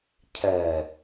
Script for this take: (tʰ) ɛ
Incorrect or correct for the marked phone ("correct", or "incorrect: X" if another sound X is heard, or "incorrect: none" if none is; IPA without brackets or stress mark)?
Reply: incorrect: cʰ